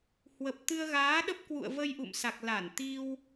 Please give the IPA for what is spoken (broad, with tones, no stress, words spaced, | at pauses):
hwə˨˩p̚ t̪ɨ˧ə̯ɣaː˨˦ɗə˦˥p̚ kwṵ˧˨ə̯və˧jʔṵ˧˨msa˨˩k̚ la˧˩nt̪i˧w